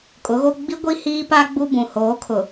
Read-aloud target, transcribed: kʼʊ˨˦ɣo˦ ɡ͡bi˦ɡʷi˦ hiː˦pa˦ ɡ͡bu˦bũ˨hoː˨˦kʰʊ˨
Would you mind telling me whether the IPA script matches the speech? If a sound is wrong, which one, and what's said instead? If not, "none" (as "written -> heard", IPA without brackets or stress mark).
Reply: none